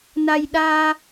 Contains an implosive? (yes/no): yes